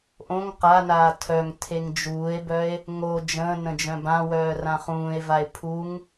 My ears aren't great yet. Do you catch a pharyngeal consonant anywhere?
no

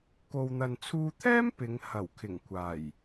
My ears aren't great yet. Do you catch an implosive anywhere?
no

